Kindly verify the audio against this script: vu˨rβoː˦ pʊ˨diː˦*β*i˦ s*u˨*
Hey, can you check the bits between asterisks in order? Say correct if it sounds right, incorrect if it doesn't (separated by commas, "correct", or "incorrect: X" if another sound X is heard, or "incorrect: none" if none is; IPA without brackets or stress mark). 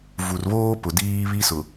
correct, incorrect: ʊ˨